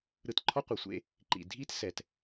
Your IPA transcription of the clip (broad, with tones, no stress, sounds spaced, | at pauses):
ɾ ɯ˧ t ǃʰ ɔ˥ qʷ ɛ˩ sʷ ḛ˧ | ǃ ḭ˩ dʱ i˥ t s ɛ˩ t